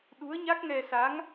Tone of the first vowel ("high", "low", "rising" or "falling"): rising